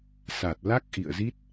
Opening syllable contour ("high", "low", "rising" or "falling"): low